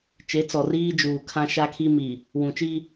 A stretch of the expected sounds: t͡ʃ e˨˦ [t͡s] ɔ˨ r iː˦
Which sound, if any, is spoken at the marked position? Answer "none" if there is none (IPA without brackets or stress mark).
t͡s